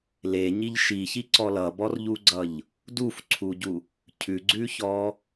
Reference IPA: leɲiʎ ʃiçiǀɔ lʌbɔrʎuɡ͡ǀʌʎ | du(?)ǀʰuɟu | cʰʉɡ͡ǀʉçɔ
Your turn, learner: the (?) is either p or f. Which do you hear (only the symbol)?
f